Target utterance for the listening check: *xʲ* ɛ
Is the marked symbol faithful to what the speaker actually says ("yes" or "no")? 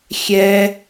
yes